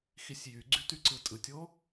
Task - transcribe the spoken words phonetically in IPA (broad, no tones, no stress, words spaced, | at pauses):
xisʲjyɡ͡ǀy tyǀɯtʼɯtʲo